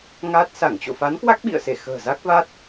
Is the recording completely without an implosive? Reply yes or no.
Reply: no